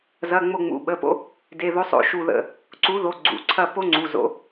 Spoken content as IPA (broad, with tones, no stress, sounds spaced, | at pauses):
z ɐ˩˧˩ ŋ͡m o˧˩ ŋ͡m ṵ˩˧˩ ɓ ə˩˧˩ p o̰˦ | d e˩˧˩ ð o˨˥ sˤ o̰˧˩ ʃ u˧˩ ð ə̰˧˩ | ǀ u˨˥ ð o˩˧˩ ɡ͡ǀ ṵ˩˧˩ ǀʰ ɐ˥˩ p o˦ ŋ͡ǀ u˩˧˩ z o̰˨˥